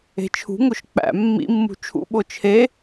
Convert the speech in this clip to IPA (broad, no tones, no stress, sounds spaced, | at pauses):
e̤ t͡ʃʰ ṳ ŋ o ʃ k͡p æ̰ mː ḭ mː ṳ t͡ʃʰ ṵ ɓ o t͡ʃʰ e